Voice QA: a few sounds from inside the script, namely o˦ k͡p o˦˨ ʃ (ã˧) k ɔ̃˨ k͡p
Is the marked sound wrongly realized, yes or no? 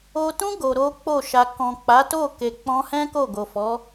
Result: yes